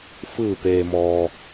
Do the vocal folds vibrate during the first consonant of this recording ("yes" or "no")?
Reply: no